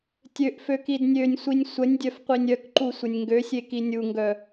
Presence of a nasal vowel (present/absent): absent